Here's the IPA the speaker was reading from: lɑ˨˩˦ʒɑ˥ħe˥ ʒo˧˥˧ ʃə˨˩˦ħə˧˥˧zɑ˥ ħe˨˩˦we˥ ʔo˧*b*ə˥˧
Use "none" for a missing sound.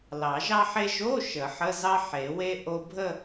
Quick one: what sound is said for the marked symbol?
bʱ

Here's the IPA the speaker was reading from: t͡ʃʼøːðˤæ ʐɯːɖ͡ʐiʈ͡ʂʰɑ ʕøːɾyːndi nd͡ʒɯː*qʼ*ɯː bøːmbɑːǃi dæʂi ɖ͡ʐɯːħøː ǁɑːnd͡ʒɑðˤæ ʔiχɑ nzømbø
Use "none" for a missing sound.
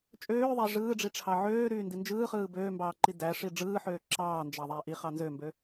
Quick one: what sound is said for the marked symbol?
χ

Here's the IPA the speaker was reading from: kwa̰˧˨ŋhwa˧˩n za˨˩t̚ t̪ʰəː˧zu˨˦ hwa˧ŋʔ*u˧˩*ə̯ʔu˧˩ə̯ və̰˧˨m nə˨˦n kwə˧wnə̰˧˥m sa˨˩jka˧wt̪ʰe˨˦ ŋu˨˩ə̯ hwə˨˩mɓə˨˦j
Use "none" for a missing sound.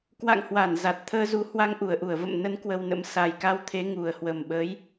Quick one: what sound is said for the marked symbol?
u˧˩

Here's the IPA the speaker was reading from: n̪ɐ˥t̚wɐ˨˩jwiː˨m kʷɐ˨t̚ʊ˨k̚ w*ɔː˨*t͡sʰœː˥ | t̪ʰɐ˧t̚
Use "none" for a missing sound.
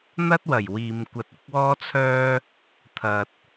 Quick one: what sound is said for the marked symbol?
ɔː˥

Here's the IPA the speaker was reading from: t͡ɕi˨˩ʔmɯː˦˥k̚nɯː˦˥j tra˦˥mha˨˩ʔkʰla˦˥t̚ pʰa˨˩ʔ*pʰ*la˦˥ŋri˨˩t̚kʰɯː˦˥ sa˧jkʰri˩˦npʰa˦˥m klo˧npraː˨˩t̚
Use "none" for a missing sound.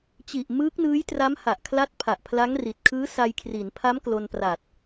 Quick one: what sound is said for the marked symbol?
pʰ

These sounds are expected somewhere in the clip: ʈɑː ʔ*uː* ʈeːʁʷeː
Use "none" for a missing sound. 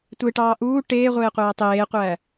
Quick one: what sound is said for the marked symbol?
uː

